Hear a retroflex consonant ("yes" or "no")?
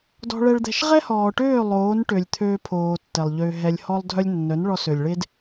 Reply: yes